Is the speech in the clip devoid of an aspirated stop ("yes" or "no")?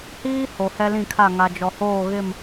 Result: no